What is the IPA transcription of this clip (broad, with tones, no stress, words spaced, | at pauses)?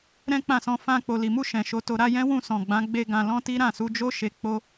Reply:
ɾɛ̃˦k͡pã˦˨sɔ̃˧ fã˧ k͡po˨li˨mu˧ ʃɛ̃˨ʃo˧to˧ ɾa˧ jɛ̃˦wũ˦˨sɔ̃˨ ɡ͡bã˨˦ ɡ͡be˦ɡã˧ lɔ̃˦ti˦ ɾã˦˨su˨˦d͡ʒo˦ ʃe˧k͡po˦